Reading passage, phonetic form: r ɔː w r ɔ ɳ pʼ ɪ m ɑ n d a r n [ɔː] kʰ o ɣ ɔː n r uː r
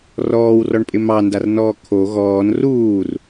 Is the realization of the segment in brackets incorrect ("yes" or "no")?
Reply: no